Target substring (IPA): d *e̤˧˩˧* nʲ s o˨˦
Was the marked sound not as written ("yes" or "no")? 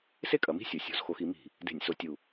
no